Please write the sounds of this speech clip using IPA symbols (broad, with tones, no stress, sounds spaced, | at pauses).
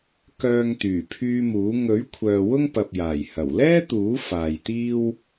k œː˨ ŋ t̪ yː˨˩ pʰ yː˧ m uː˨˥ ŋ ɵ˨˥ ɥ kʷʰ œː˨ w ʊ˥ ŋ p ɐ˨ p̚ j aː˨˩ j h ɐ˨˩ w l ɛː˥ t̪ uː˨˥ f aː˨ j t̪ iː˥ w